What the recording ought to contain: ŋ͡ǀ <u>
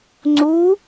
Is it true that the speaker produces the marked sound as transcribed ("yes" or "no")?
yes